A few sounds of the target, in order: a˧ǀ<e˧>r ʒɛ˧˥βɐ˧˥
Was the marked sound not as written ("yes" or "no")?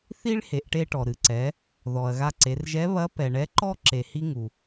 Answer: yes